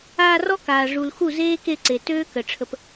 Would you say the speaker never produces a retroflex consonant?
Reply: no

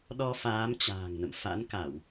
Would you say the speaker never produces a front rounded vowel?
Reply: yes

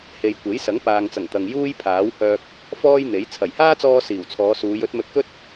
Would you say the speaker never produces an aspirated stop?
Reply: no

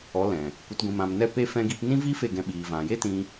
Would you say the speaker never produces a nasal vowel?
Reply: no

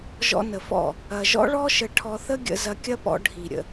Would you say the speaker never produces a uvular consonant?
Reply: yes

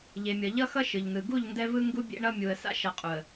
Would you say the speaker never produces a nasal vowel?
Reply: yes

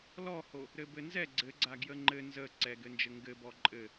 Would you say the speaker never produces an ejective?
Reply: no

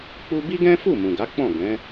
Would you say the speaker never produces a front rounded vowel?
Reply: yes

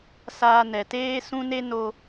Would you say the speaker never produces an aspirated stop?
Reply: yes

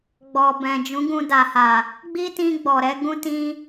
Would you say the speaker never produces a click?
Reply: yes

